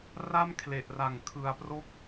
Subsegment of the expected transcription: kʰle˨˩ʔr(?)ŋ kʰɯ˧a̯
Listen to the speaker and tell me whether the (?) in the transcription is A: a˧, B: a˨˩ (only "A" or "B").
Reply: B